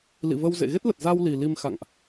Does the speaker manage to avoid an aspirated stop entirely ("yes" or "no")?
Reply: yes